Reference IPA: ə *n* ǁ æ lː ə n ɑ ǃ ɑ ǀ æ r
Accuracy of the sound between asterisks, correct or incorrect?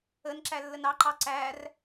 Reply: correct